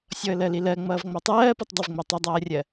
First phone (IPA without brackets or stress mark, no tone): sʲ